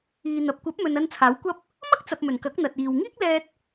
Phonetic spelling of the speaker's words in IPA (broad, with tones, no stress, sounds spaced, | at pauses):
iː˨ n̪ ɐ˨ p̚ kʷ ɐ˨˥ p̚ m ɵ˨ n ɐ˧ n t͡sʰ aː˨˥ w kʷ ɐ˥ p̚ | m ɐ˥ k̚ t͡s ɐ˨ p̚ m ɵ˨˩ n k ɐ˨˥ k̚ n̪ ɐ˨ t̚ iː˨ w ŋ iː˥ k̚ l ɛː˧ t̚